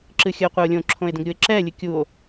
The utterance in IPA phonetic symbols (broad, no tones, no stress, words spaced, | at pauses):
ǁɨxʲəo̯qʷœo̯lʲõ ǁʰõe̯də̃ɡɾʲue̯ǁɛ lʲɨkʲuo̯